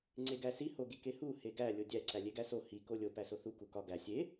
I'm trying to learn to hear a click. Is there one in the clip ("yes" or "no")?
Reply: yes